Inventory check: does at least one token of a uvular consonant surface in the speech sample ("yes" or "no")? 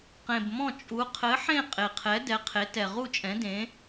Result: yes